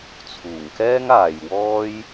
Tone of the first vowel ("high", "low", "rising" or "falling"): low